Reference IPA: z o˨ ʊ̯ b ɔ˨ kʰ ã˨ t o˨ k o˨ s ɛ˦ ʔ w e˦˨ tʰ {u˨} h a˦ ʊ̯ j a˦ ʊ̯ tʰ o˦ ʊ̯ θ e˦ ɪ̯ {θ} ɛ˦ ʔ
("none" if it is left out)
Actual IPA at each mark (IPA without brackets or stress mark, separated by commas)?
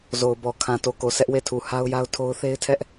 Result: u˨, tʰ